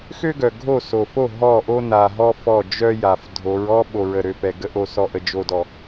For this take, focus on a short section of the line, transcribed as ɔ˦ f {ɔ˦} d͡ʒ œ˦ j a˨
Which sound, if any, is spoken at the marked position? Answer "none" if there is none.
ɔ˦˨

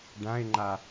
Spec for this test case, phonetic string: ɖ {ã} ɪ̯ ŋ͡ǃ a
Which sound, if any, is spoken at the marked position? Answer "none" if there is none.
ã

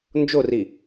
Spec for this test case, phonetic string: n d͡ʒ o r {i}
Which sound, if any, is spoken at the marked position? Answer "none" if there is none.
i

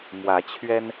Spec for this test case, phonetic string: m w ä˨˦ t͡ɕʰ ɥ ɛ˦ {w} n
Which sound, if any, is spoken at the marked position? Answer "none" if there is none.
none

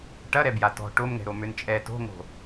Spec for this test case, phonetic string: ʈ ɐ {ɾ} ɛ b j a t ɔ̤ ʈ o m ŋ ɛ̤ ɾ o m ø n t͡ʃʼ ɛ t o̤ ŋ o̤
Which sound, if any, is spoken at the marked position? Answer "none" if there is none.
ɾ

